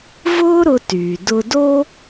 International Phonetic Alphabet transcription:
vʊː˥ɾʊ˧tyː˩ dʊ˧do˥

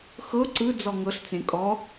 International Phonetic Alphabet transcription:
xɤ ǀɯ d͡zɔŋɤɬt͡sẽ kʼɔ

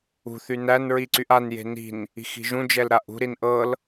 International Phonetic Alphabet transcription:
ṳθy nænɹiǀyʔ anje̤ ni̤n | i̤xi̤ʒũ d͡ʒɛlɾaʔṳɾin ʔɤl

